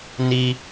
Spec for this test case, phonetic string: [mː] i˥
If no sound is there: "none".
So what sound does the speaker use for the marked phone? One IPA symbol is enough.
n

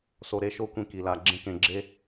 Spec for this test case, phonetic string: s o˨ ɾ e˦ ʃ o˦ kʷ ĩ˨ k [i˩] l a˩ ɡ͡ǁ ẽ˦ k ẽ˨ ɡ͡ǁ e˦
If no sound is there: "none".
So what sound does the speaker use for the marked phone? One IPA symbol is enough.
i˩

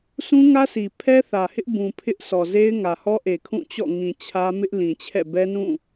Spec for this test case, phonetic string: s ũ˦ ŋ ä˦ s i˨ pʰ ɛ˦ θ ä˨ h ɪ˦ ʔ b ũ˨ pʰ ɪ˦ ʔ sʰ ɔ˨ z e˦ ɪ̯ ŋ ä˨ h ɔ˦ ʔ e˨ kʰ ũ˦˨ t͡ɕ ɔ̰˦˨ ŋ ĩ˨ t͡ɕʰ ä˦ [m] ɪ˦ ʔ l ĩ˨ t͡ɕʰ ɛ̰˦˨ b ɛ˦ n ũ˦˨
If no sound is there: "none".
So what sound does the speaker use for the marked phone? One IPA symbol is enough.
m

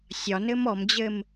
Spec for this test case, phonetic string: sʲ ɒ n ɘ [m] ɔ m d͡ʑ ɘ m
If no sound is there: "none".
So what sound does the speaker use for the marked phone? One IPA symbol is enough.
m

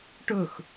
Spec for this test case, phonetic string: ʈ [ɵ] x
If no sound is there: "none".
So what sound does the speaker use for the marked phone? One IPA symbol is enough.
ɵ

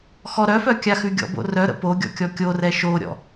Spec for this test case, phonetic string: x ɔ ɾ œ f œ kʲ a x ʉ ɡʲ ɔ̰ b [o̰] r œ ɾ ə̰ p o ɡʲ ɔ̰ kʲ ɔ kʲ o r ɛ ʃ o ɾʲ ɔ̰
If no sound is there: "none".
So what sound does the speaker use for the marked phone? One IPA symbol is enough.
o̰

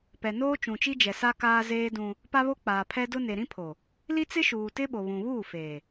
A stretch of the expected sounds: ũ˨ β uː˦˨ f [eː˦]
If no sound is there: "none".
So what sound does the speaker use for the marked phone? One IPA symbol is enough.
eː˨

